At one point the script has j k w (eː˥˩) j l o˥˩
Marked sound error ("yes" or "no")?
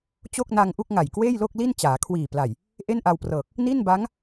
no